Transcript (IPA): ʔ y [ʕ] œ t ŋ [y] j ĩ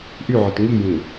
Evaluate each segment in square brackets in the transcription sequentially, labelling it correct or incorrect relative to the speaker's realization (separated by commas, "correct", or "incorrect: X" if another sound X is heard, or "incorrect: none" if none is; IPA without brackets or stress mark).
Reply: correct, incorrect: i